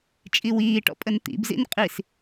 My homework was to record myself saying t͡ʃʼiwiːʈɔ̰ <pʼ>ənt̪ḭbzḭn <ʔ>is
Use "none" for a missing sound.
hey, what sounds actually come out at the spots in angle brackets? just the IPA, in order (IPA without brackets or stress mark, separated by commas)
pʼ, qʼ